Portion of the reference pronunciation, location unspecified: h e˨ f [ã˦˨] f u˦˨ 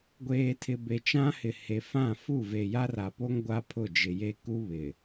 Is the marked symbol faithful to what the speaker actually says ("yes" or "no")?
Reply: yes